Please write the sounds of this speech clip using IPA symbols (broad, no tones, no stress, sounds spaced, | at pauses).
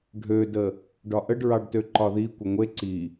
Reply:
ɖʱ ø d ə | ɖ ɒ ʔ ə ɖ ɹ ɑ ɖ t ø ǃ ɒ ð i kʷ ʌ ŋʷ e ǀ i